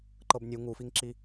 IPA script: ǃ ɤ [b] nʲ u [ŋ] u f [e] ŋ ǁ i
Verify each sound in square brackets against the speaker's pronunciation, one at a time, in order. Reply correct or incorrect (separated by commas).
correct, correct, incorrect